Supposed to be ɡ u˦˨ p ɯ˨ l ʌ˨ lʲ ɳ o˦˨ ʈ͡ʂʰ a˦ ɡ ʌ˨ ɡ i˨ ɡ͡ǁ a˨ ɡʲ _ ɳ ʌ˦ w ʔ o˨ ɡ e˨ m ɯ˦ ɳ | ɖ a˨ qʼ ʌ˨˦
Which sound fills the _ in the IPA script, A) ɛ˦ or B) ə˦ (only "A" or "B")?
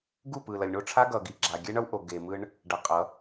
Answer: A